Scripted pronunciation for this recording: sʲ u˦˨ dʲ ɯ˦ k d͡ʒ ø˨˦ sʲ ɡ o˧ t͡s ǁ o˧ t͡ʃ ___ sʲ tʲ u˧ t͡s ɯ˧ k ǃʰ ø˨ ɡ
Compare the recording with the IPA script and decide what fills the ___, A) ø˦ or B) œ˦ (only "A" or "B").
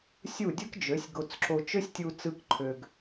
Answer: A